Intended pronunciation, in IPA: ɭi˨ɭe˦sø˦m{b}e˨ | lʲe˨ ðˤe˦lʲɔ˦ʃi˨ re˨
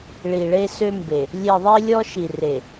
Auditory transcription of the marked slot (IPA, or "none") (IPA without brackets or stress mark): b